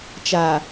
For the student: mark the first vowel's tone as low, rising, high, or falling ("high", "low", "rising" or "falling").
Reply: low